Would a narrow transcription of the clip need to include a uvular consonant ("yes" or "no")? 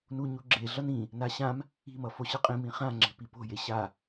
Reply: yes